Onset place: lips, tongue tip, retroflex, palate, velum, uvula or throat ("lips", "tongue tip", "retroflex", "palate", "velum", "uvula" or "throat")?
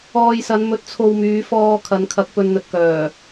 palate